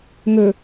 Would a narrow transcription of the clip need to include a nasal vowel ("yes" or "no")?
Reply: no